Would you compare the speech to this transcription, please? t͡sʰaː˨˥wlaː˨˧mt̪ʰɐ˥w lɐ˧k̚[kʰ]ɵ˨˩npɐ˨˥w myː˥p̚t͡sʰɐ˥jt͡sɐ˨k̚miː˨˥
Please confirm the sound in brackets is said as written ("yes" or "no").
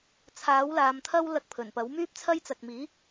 no